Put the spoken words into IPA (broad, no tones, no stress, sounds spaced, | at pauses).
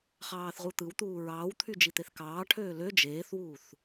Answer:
χ ɑː θ ʁ u t̪ ɯ w t̪ uː ɹ ɑː w t̪ʰ y d͡ʒ i t̪ e θ k ɑː ʈʰ øː l ø d͡ʒ eː θ w uː θ